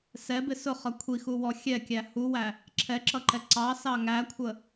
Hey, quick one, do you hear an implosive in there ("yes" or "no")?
no